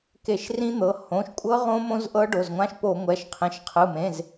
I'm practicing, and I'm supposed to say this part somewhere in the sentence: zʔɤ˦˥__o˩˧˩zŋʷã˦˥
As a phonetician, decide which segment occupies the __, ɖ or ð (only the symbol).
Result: ɖ